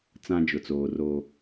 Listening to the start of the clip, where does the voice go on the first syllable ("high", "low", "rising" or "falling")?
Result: high